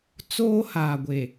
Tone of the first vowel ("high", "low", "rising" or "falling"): high